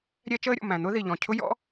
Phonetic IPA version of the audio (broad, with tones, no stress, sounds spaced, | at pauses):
ɾʲ ɛ˥ t͡ʃ əː˥ ɾʲ ɔ̰˩ m æ̃˩ n̪ ʊ˥ ð i˩ ʎ ɔ̃˩ cʰ ʊ˥ j ɔ̰˥